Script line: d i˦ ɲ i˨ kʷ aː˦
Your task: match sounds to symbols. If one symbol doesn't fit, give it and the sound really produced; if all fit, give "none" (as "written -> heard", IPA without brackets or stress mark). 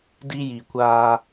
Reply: ɲ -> j